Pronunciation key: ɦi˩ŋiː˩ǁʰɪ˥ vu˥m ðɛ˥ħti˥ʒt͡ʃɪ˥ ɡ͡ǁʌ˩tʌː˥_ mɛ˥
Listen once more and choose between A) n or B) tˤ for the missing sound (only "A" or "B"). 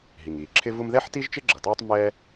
B